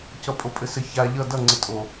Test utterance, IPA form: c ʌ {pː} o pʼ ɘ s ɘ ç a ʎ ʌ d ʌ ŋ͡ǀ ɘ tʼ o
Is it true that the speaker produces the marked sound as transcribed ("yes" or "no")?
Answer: no